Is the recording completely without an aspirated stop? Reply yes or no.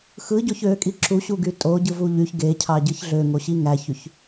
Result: no